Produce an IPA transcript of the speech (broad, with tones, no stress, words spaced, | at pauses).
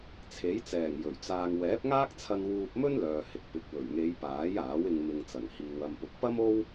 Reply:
t͡sʰe˨˥jt͡sɛː˨˩ŋ jɵ˨˩ɥt͡saː˧ŋ wɛː˨˥p̚ŋaː˥k̚t͡sʰɐ˧n wuː˧p̚mɵ˥n lœː˨hɪ˨k̚pɪ˨˥k̚ wɵ˨˩ɥŋe˨˧jpaː˨˥j aː˨˥wɪ˧ŋ mɪ˨ŋt͡sɐ˨˩ŋhiː˨w ɐ˧mpʊ˧k̚ pɐ˥mo˥w